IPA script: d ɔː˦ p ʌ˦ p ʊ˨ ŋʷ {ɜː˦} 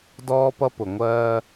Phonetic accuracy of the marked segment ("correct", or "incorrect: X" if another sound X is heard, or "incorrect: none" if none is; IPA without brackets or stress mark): correct